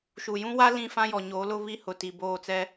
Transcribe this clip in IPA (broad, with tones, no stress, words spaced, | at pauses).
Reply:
ʃu˨jũ˦wa˦ lĩ˦˨fã˦jɔ˨ɲoː˨˦ lʊ˦βi˦ hʊ˨ti˨boː˦˨t͡sɛ˦